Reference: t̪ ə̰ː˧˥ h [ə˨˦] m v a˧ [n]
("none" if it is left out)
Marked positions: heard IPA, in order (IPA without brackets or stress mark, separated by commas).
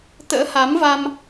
a˨˦, m